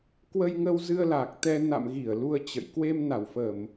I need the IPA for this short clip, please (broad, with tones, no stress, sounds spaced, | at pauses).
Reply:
k w ə˧ j ŋ ə˧ w z ɨ˧ ə̯ l aː˨˩ k̚ t̪ ɛ˧ n a̰˧˨ m ɣ i˧˩ ə̯ l u˧ ə̯ t͡ɕ ə̰˧˨ j k w e˧ m n a˧˩ w f ə˧˩˨ m